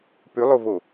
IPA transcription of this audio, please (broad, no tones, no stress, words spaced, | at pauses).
pʉlˠovo